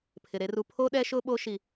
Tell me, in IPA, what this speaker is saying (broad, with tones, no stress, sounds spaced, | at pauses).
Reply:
pʰ ɪ˨ ɾ e˦ r u˦ pʰ o˦ ɗ ɛ˦ ʃ ʊ˦ ɓ o˦ ʃ i˨